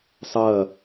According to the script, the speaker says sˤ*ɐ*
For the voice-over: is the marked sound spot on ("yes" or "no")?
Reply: yes